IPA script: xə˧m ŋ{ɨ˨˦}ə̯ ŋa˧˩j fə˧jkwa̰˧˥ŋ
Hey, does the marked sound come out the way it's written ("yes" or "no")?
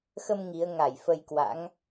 no